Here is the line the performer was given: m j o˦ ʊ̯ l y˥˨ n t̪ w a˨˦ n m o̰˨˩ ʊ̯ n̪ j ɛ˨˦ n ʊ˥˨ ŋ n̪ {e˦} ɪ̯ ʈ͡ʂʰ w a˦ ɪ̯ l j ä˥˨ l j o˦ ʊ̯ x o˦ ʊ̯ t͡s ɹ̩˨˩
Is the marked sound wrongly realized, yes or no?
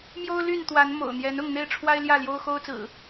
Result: yes